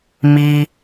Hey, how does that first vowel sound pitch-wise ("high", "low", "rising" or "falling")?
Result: low